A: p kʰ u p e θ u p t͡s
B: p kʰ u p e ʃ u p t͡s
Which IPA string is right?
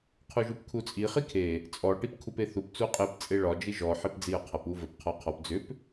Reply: A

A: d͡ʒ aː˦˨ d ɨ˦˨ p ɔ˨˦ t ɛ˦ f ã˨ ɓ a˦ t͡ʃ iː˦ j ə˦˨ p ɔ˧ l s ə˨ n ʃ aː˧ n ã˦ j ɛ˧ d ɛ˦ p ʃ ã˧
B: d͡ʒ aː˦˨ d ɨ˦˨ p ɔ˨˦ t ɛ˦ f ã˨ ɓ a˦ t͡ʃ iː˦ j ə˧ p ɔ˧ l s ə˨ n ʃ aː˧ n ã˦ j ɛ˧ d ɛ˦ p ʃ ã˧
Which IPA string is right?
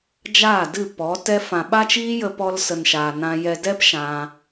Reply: B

